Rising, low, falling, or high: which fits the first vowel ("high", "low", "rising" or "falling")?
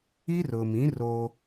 high